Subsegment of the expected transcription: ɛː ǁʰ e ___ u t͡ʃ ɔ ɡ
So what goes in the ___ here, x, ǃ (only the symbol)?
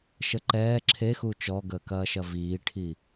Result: x